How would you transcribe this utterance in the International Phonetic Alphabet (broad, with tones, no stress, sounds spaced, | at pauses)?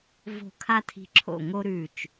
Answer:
v o̤˧˩ kʰ a˦ tʰ i̤˧˩ ǁʰ o̰˧˩ ŋ o˦ ɾ ʉ˧˩ t͡ʃ